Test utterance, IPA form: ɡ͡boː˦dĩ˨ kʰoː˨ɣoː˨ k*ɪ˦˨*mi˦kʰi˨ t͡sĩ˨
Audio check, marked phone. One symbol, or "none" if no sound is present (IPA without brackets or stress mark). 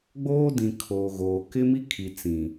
ɪ˦